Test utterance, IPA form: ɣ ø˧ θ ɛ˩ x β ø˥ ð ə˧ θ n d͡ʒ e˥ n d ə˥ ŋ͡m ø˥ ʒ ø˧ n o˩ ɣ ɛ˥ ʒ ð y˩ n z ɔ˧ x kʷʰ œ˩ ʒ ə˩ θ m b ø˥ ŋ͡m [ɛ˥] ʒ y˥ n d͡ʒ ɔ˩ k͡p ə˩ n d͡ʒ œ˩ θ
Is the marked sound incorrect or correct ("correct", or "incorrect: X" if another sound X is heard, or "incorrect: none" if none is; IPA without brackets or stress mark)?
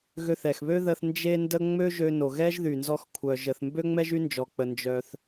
correct